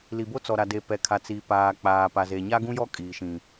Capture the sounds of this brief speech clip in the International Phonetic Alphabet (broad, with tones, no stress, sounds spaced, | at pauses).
l i˨ b o˦ t͡s ɔ˨ ɾ a˨ d e˨ p ɛ˨ kʰ a˨ t͡s i˨ p aː˨ k͡p aː˨ p a˨ z e˨ ɲ a˦ ɡ ũ˦ j ɔ˦ kʼ iː˨ ʃ ĩ˨